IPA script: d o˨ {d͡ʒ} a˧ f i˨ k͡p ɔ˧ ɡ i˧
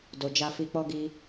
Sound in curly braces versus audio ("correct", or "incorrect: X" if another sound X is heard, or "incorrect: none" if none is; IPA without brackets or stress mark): correct